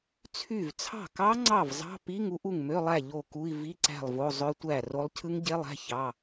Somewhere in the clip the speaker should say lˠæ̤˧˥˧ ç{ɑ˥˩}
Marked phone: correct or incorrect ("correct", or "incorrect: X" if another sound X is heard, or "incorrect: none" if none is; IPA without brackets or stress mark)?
incorrect: ɑ˧˥˧